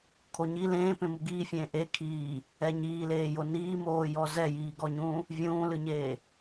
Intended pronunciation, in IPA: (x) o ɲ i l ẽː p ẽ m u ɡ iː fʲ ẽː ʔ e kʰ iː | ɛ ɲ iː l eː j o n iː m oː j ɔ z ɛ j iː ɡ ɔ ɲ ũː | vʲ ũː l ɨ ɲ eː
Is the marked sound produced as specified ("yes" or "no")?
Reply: no